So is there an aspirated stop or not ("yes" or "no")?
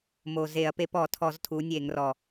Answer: yes